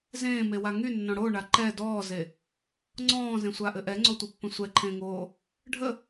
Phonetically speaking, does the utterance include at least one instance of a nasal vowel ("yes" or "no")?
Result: yes